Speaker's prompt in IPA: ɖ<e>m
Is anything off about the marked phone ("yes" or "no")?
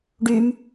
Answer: yes